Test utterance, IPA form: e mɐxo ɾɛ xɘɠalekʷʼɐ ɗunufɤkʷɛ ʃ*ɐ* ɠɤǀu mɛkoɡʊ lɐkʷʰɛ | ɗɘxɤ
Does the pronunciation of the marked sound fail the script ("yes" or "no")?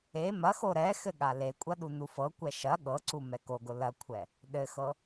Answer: no